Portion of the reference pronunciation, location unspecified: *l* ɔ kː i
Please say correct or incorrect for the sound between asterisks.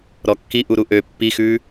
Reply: incorrect